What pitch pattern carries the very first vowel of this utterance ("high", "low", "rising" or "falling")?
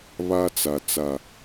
high